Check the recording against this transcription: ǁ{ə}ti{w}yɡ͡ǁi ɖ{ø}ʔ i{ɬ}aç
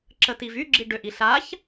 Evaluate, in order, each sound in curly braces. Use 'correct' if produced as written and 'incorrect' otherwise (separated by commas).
correct, incorrect, correct, correct